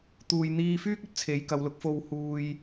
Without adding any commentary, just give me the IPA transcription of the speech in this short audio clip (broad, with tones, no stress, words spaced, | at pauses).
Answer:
t̪uː˨jn̪iː˧fyː˥k̚ ɵ˧t̚t͡sʰe˨˧jkɐ˨˧wlʊ˨˥k̚ fo˧whuː˧j